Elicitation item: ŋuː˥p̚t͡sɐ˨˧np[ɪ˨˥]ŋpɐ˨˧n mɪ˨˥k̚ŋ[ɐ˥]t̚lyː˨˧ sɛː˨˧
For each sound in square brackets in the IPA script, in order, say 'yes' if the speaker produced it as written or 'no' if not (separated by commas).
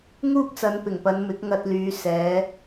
no, no